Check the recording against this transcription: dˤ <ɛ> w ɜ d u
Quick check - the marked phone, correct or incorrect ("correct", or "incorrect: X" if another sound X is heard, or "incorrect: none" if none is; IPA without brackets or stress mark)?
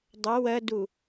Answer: incorrect: ɘ